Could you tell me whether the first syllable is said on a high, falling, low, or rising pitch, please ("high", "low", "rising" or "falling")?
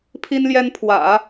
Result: high